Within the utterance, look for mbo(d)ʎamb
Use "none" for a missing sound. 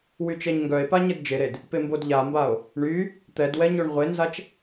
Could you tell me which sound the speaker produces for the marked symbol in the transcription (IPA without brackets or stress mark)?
d